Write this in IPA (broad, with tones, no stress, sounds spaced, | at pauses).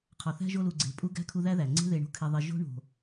qʰ ɒ˨ θ æ̤˥ ʒ o˦ l u˨ ɡ͡ǀ e̤˨ pʼ u˦ ɡ æ̤˥ kʰ u˦ ð æ˥ ð æ˩ ŋ͡ǀ e̤˦ ð e˨ ɳ o̤˦ kʰ e˨ ðˤ i˨ ʒ o̤˦ ɳ o̤˩